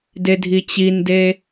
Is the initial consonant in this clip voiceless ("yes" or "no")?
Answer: no